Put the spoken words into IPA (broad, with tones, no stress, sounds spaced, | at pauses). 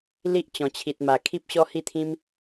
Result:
l i˦ ʔ t͡ɕ ɔ̃˨˩ t͡ɕʰ i˨ t̚ m a˨˩ kʰ i˦ p̚ ɕ ɔ˦ h i˥˧ t̪ʰ ĩ˦ m